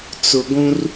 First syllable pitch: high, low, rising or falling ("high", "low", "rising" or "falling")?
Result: low